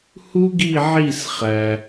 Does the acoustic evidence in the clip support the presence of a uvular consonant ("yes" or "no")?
yes